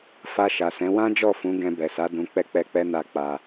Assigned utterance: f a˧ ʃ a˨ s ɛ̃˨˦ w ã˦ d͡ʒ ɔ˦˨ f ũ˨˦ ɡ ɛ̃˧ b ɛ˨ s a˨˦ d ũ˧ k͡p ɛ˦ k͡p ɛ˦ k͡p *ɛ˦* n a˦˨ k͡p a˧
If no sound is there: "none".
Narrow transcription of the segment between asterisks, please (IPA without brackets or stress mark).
ɛ˦